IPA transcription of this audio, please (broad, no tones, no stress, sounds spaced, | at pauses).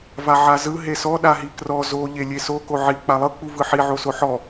v a ʕ a z ɯ ɦ e s ɔ ɗ a ɦ i k r ɔ z o ʎ e lʲ e s o k o ʕ i k͡p a lˠ ɤ k͡p u v ɯ ħ i ʕ o s o ħ ɔ